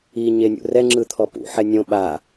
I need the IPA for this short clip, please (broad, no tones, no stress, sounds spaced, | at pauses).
i ɲ e nʲ ṵ r ɛ ŋ͡ǁ ɯ t̪ʰ ɔ p ṵ ħ ɛ nʲ õ ɓ a